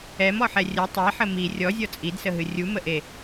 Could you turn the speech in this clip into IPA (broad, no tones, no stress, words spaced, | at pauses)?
ɛmɔħɛ rʲə tˤɛħə mi rʲɔzʲɔ t͡sʼidsəɦɨ rʲuməʔe